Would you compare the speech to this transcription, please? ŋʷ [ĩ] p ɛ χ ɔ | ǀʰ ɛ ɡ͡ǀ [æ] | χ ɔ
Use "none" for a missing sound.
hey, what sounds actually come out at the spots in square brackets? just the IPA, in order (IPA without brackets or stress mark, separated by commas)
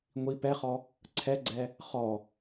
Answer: i, ɛ